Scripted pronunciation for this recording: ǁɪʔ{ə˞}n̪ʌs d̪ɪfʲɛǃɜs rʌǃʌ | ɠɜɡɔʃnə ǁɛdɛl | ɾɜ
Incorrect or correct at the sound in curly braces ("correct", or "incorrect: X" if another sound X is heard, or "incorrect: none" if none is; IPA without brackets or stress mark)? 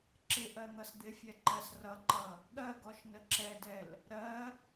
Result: incorrect: ɜ